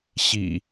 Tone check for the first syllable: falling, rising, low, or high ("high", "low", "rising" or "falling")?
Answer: low